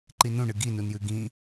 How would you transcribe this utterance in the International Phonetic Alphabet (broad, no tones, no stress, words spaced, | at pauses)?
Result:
ǃinũɳɨ ɡinunjʉ ɡĩ